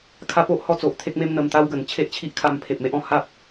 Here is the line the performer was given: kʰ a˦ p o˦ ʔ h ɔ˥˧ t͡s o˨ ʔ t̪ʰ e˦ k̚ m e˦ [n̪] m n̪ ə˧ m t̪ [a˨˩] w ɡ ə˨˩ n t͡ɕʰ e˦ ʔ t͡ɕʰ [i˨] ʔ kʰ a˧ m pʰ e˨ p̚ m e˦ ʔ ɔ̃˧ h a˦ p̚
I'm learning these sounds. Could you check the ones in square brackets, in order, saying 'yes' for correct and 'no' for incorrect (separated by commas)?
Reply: no, no, no